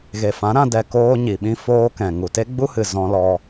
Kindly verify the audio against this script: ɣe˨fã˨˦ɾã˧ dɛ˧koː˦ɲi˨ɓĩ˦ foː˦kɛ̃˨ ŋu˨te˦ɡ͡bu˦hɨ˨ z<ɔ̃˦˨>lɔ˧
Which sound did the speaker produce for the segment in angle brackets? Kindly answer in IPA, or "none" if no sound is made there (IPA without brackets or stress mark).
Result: ɔ̃˧